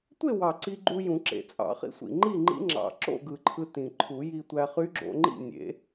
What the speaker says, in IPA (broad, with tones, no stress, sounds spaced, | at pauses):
tʷ e˥˨ w ɑ˨˩ ǀ i˧ ɡ͡ǃ u˧ j ũ˨˩˦ ǁ ḛ˨˩ t͡sʼ ɑ̰˨˩˦ χ ḭ˧ sʷ ḭ˨˩ ŋ͡ǃ i˥˨ ŋ͡ǃ ḭ˧˥ ŋ͡ǁ ɑ̰˨˩ ǁ o̰˥˨ ɡ ɯ˨˩ ǃʰ ɯ˧ t ĩ˨˩ ǃʰ u˨˩˦ j i˧ tʷ æ˧ χ y˧˥ ɡ͡ǁ o̰˧ ŋ͡ǃ ḭ˥˨ nʲ ḛ˨˩˦